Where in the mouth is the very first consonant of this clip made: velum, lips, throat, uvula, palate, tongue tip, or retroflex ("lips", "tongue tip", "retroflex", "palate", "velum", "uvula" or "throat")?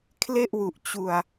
velum